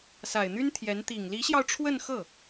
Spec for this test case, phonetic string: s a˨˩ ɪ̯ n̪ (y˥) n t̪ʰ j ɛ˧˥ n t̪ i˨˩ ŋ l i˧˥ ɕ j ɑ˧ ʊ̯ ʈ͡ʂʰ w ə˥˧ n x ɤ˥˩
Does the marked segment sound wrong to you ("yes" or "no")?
no